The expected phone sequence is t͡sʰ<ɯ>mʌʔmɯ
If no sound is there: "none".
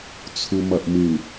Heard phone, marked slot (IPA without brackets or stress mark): u